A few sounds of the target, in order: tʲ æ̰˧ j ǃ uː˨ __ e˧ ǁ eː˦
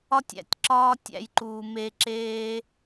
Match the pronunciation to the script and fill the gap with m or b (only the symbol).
m